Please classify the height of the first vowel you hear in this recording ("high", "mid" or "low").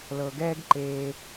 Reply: mid